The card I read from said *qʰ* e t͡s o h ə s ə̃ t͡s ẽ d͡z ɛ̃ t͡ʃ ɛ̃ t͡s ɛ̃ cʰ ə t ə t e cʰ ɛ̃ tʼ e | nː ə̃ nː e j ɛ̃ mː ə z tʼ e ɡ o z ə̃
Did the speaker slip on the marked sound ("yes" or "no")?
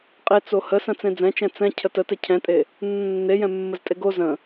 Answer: yes